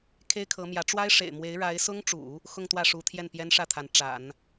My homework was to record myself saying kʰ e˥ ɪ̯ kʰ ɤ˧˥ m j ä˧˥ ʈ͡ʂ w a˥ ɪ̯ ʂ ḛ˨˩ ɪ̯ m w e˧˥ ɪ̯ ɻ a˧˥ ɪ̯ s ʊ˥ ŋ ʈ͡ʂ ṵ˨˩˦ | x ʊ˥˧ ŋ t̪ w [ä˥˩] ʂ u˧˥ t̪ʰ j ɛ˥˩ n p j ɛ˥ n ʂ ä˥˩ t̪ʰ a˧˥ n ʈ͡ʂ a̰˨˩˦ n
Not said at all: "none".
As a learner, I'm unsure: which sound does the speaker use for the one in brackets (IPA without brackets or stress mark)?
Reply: ä˥˩